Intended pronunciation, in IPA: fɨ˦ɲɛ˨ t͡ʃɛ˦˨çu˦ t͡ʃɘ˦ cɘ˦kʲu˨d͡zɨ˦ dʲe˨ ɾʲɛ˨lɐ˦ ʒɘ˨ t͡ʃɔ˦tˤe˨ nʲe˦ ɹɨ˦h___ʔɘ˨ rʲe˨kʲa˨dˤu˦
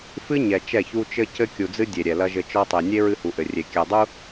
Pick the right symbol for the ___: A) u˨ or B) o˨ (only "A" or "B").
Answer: A